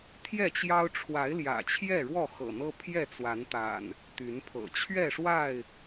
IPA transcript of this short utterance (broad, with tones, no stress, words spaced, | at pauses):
t̪ʰjɛ˥˨t͡ɕjɑ˦ʊ̯ ʈ͡ʂʰwa˨˦ɪ̯ljä̰˨˩ t͡ɕʰjɛ˥˨ɻwɔ˥˨xɤ̰˨˩n̪ɤ˦ pʰjɛ˥˨t͡swa˨˦nt̪a̰˨˩n | t̪y˨˦npʰɤ̰˨˩ t͡ɕʰɥɛ˥˨ʂwa˥˨ɪ̯